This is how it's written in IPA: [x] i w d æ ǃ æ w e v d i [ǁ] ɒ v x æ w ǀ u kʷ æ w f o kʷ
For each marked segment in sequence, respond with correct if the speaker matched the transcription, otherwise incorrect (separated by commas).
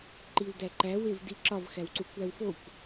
incorrect, correct